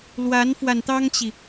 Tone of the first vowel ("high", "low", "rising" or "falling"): rising